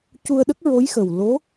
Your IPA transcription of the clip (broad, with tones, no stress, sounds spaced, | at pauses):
c u˧ ə̯ ɗ ə˦˥ k̚ ɹ o˧˥ j x ə˨˩ w l o˧˥